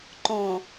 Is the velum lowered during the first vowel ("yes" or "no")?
yes